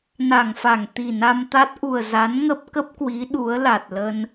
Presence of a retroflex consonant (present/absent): absent